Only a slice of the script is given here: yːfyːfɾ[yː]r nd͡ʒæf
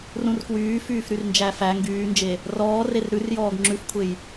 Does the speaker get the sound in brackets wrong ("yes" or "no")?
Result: yes